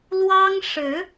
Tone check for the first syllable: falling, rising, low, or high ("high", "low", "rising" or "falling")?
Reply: high